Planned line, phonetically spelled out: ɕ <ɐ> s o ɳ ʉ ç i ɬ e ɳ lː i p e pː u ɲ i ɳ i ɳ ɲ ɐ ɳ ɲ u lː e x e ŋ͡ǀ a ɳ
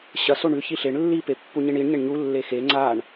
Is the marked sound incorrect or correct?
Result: correct